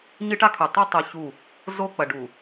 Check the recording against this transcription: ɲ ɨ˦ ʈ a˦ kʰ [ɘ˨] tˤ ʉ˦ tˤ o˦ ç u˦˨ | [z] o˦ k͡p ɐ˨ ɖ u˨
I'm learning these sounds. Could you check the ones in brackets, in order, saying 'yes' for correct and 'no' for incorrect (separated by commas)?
no, yes